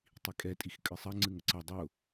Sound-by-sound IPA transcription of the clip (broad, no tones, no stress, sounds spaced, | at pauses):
tˤ i kʼ ɛ tʼ i x kʼ ɨ sˤ ɐ ŋ͡ǀ ɨ ŋ ə ǀ ɐ dˤ ʊ